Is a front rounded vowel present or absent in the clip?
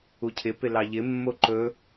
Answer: absent